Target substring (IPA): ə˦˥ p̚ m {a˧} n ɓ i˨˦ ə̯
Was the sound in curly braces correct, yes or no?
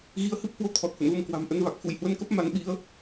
no